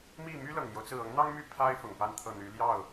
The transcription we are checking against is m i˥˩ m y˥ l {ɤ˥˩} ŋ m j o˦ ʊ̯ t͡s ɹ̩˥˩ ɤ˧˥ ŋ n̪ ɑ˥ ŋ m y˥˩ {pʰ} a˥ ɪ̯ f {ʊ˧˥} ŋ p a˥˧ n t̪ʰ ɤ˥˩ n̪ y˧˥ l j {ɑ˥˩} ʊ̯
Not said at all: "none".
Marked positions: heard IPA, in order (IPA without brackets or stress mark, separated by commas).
ɤ˨˩, pʰ, ʊ˨˩, ɑ˥˩